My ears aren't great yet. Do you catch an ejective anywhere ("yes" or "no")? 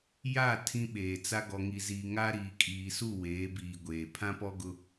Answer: yes